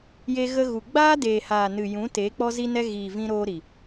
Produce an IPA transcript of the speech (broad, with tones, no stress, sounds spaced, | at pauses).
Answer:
j e˧ ɣ ə˧ ɣ u˨ ɡ͡b aː˦ d eː˨ h aː˨ n ɨ˨ j ũ˨˦ t eː˨˦ k͡p ɔ˦ z i˦ n ɛ˦ ɣ iː˨ v ĩ˧ ɾ oː˧ ɾ i˨